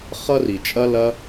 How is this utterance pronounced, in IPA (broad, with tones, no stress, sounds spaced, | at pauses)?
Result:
χ ʌ˦ r i˨ t͡ʃʼ ɐ˦ l ɐ˧